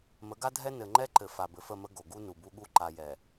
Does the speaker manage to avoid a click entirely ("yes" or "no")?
no